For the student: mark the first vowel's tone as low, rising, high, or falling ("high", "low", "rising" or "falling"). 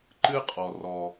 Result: high